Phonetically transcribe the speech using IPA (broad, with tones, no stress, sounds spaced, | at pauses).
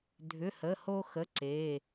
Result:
dʱ ʏ˩˧˩ h ə˩˧˩ h o˧ x ə˩˧˩ ǀ e˩˧˩